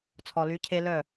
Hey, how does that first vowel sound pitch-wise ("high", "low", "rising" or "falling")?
low